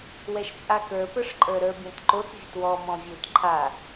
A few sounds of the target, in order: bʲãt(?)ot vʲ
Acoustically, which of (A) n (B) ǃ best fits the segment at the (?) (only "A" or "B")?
B